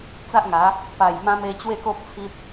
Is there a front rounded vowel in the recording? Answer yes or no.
no